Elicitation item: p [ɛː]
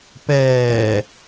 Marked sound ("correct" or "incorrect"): correct